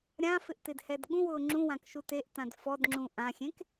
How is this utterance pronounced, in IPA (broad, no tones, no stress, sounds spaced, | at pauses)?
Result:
ɾʲ ã f ɪ ʔ t ɪ d h ɛ d ɠ ũ w ʊː ŋ͡ǁ ũ w ã k ʃ u t e ʔ t ã d f ɔ d ŋ͡ǁ ũ ʔ ã xʲ ẽ k